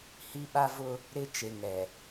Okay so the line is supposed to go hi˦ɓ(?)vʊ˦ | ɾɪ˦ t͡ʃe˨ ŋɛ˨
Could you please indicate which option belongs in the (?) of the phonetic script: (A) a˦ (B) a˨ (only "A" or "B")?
A